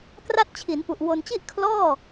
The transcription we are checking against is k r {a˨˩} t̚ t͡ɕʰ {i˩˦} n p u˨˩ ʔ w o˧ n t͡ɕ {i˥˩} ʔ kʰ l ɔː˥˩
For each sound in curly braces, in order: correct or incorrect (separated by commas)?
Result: incorrect, correct, correct